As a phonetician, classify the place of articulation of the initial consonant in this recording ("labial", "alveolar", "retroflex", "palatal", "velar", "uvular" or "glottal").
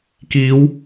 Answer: velar